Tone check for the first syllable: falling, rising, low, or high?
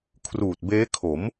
low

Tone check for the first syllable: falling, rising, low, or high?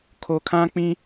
low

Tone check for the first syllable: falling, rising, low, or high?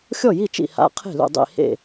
falling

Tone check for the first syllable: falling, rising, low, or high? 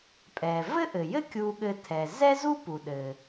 low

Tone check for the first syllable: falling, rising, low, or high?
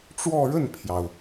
falling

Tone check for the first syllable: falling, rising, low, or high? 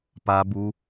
high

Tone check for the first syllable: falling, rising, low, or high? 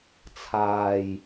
low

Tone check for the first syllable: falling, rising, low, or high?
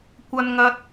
high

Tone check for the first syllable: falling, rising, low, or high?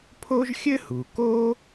high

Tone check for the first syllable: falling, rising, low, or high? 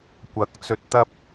rising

